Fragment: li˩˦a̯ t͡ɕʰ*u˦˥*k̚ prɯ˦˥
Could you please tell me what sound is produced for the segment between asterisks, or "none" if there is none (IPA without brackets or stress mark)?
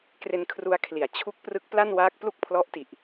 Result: u˦˥